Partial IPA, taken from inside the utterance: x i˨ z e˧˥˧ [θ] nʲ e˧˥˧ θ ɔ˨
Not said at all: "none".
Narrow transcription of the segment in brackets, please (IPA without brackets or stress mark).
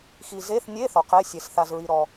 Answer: θ